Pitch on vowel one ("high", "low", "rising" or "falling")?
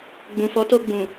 low